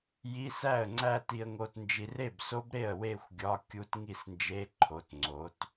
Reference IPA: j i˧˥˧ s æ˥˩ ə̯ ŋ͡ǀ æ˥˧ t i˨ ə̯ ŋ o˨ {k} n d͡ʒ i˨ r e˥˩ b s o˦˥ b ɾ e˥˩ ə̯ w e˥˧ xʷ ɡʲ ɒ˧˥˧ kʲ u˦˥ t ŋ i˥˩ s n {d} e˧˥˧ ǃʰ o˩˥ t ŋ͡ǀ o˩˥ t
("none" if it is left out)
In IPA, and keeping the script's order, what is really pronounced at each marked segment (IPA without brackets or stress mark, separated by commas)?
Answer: t, d͡ʒ